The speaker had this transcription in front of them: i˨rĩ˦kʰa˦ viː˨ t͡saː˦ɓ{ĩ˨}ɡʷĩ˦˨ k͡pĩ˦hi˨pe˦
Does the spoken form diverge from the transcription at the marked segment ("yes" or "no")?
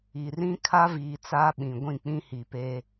no